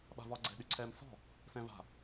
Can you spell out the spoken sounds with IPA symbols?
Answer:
ɓa̤vɒɡ͡ǀɛ̤ ɗyǀʰɛːmsɔ̤ | sɛ̃va̤

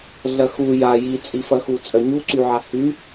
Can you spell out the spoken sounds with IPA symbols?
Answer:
ɮɐxu ja jit͡sʼifɐxu t͡sʼœɲuǀyʕa hy

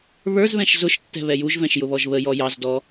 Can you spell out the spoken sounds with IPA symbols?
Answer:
βə˞zβɛ̃ʃ zʊʃ tːɛ̤βɛjuʒvɛ̃ʃ jʊβɔʒβəjɔ jɑzdɔ

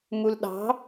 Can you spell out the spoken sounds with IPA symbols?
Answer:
mulɗɑ̤

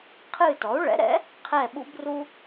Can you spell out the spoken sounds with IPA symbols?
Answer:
qʰɨː˦˨tɔ˩˥u̯ ɭɛ̰˩˥ɾɛ̰˩˥ | qʰɛ˦˨ ɓṵ˦bru˦

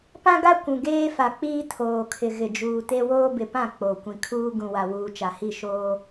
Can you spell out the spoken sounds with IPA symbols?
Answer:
pã˦ɡa˦ kʷũ˨ɡeː˦fa˨k͡piː˦ tʰoː˨kʰɪ˨ ɣɪ˨d͡ʒuː˨te˦ woː˦bɪ˨pã˦˨ k͡po˨ kʷĩ˨kʰuː˦ ɡũ˨wa˨wuː˨ t͡ʃa˨hi˦˨ʃoː˦

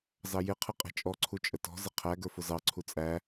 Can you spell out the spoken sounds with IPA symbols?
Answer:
zɑjɪqʰɪ qʼɛ̤t͡ʃʼɔǀʰu t͡ʃʼətɔ̤zɪ qʰæ ɡə˞fʊzɑǀʰu t͡sʼæ

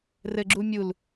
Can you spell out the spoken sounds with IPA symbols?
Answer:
rɘɡ͡ǁu mʲul

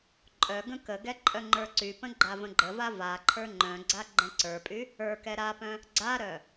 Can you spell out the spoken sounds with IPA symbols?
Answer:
ǃʼœ ɡə̃kəɡɛ ǃʼœŋ͡ǃə˞ǀypə̃ ɡ͡ǃavə̃ɡ͡ǃəva vaǃʰə˞ ŋ͡ǃœ̃ɡ͡ǀa ɡ͡ǃɛ̃ǀə˞pʼy | ə˞ kɛɾapœ̃ | ɡ͡ǀaɾœ

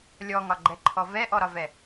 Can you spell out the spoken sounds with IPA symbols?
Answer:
lʲɔŋɒɡ͡ǃɛǃʰɔ vɛʔɔɾɒvɛ

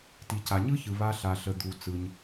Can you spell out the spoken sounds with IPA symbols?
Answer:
ti˩ca˩ɲɯ˦çɯ˩ βa˨ɬa˩ɬə˩ d̪u˩ t͡sɯ˩ɲ

